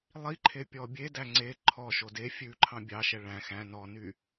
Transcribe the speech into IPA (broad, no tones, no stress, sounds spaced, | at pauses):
lˠ i ǃʰ e pʲ ɔ bʲ e d æ ŋ͡ǀ e ǃʰ ɔ ʃ o d e fʲ ʉ ǃʰ ɑ̃ bʲ ɑ ʃ ɛ ɭ æ̃ x æ̃ n ɔ n y